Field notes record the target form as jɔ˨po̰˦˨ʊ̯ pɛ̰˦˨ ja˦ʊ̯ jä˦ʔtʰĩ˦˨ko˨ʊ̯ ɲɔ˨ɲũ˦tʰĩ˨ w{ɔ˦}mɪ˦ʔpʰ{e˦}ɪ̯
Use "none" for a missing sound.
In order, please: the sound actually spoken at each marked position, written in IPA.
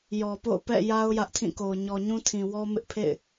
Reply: ɔ˦, ḛ˦˨

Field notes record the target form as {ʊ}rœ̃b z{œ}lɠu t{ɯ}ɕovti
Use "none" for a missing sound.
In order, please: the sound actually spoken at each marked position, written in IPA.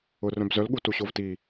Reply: ʊ, œ, u

